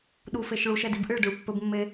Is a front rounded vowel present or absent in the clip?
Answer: absent